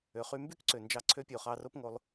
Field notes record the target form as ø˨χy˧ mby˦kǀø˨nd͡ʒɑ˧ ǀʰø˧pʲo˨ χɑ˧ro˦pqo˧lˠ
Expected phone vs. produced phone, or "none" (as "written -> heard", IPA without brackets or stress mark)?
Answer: q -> ŋ